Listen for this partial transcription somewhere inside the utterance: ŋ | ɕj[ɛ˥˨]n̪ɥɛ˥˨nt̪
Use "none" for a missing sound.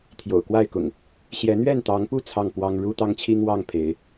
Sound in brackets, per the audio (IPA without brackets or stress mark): ɛ˨˦